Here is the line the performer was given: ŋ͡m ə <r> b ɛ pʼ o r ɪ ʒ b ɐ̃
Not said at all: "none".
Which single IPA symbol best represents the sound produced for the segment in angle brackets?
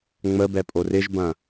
none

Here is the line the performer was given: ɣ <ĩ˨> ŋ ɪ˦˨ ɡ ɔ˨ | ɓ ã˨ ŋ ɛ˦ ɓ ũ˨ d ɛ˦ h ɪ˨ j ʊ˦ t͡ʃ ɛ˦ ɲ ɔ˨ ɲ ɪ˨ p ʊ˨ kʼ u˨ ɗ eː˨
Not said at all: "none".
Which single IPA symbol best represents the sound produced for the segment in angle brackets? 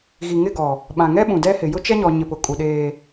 i˨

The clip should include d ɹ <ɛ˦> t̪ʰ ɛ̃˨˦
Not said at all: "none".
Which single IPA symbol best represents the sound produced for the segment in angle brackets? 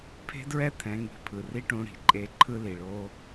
ɛ˦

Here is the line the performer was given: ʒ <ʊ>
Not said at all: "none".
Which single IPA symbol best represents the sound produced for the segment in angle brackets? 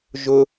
ʊ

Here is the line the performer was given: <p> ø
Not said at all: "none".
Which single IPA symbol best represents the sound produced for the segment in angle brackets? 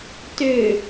t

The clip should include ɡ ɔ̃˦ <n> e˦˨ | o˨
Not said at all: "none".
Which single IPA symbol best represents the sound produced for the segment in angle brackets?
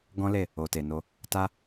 l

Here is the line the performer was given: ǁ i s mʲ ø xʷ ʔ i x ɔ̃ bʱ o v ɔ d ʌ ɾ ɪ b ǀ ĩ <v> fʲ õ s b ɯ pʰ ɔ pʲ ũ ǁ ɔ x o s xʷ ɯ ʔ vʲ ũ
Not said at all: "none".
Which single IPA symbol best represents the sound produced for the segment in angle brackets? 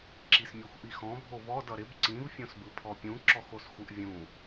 v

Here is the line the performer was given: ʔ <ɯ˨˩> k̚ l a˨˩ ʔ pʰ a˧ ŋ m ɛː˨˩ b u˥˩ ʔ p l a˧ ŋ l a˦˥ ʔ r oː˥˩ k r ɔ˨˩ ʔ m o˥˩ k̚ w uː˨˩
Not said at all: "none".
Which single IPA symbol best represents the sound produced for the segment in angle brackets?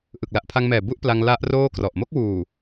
ɯ˨˩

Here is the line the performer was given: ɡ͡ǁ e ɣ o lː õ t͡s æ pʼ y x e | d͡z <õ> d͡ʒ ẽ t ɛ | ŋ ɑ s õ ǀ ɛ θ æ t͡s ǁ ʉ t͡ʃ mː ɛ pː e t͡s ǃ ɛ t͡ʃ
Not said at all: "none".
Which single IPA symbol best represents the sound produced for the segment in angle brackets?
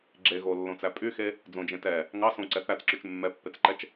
õ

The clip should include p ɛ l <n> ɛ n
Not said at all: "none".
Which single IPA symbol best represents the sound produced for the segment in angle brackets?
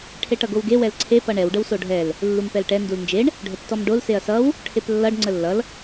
ʈ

